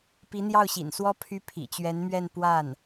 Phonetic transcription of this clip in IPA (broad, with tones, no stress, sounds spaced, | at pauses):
p i˧˥ n̪ j ɑ˥˩ ʊ̯ ɕ ḭ˨˩ n s w ɔ˥ pʰ y˥ pʰ ḭ˨˩ t͡ɕ ɥ ɛ˧˥ n m ɥ ɛ˥˧ n p w a˥˩ n